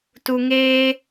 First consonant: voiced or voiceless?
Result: voiceless